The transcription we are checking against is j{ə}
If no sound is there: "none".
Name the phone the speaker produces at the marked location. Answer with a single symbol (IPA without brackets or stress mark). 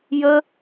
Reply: ə